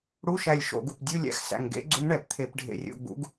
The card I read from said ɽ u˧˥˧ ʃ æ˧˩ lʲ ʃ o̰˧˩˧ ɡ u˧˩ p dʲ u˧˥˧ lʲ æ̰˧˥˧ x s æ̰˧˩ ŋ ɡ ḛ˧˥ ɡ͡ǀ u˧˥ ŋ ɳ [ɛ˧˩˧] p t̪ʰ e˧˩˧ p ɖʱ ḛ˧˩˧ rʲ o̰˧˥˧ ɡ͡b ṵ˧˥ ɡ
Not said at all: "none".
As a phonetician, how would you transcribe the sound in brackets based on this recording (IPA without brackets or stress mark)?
ɛ˧˩˧